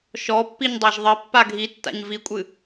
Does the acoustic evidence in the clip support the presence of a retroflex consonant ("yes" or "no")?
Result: no